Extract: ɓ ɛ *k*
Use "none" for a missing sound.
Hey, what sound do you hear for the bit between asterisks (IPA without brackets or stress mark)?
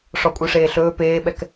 k